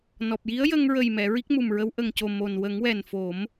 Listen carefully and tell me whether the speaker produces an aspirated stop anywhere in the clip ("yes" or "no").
no